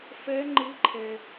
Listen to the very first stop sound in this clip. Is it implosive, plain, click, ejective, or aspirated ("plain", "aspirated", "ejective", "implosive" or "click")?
click